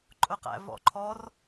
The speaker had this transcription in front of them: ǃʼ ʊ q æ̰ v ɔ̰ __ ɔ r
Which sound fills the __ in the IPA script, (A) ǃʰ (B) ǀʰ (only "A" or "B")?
A